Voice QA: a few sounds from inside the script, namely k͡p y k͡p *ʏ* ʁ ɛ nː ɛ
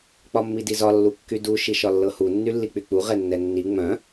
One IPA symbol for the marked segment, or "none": u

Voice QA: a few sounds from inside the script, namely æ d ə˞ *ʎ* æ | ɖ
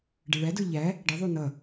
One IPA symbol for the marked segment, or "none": ʎ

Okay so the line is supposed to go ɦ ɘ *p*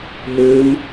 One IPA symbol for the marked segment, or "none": m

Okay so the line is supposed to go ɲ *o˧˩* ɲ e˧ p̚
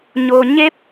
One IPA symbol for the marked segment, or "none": o˩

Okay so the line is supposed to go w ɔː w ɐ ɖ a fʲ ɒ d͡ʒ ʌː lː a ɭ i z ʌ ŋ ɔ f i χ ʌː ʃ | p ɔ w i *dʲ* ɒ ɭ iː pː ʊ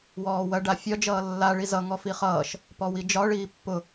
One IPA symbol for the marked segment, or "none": d͡ʒ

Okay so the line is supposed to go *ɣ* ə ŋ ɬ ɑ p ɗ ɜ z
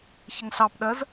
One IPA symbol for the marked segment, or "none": ç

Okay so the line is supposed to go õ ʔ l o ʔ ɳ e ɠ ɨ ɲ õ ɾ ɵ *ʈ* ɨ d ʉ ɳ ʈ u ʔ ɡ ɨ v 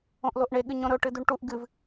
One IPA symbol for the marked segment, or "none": ʈ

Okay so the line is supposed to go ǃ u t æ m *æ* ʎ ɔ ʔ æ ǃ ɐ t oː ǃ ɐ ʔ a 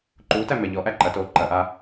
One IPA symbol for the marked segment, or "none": æ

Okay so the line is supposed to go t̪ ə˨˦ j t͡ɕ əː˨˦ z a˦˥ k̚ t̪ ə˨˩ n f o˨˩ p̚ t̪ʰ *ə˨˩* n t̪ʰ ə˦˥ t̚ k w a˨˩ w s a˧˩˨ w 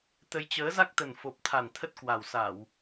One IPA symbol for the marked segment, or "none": a˨˩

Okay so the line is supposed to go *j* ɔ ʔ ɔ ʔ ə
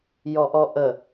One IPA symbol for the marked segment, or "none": j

